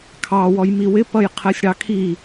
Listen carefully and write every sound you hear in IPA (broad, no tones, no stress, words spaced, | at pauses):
kʰɑ wɔjmiwɪ pʌjqʰɜsʲɽɑkʰi